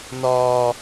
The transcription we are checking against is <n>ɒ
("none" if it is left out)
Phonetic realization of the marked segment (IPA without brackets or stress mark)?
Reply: n